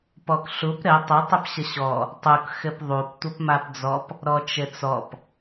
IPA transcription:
p ɔ k ɬ u p ɾ ɘ tˤ ə tˤ ɘ p ɕ ə ɕ ɔ | tˤ u k x ɘ p ðˤ u p tʷ ə p m a p d͡z ɔ p | ɾ ɔ t͡ʃ ɘ t͡s ɔ p

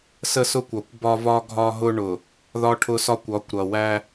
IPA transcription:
s ə˦ s ʊ˦ kʷ ɒ˨ kʷ b ɒ˦ v ɒ˦ ɡʱ ɒ˦ ɦ ʊ˦ ɳ ʊ˨ | ð ɒ˦ ʈʰ ʊ˦ s ɒ˦ kʷ ɒ˨˦ kʷ ɾ ʌ˨ w æ˦

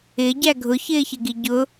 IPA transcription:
ɪ ɟ æ ɡʱ ʊ ç ɪː ç ɪ ɡ i ɟ ʊ

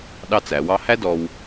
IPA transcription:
ɗ ɑ˥ t͡s æ˩˧ w ɑ˥ h æ˥ d ɔ˧ w

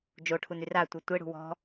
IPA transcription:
d͡ʒ o ʈʰ u n y r a tʷ ɛ tʷ e ɽ ṳ w ɔ̤

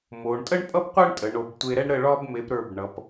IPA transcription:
m o˩˧ ɳ tʼ ə˥ ɳ pʼ ʌ˥ p qʷ ɛ˥ ɳ tʼ ə˩˧ ɳ o˩˧ b tʷ e˧ ɾ ɛ˥ ɳ ɾ ə˧˩ ɭ ɒ˧ b m e˩˧ p ɾ ə˞˧˩ b ɳ ʌ˩˧ p

